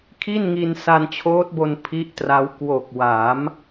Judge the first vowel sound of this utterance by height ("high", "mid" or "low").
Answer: high